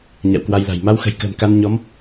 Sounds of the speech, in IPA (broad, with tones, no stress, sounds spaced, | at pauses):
ɲ a̰˧˨ w k w a˧ j l a̤˨˩ j m a˧ w x ə̤˨˩ j k ə̤ː˨˩ m k a˧ n ɲ ɔ˨˦ m